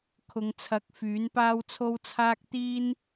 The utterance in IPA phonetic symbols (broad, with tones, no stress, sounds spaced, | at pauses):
kʰ ʊ˨˧ ŋ t͡sʰ ɐ˨˥ k̚ f yː˨˥ n p aː˥ w t͡sʰ o˥ w t͡sʰ aː˥ k̚ t̪ iː˥ n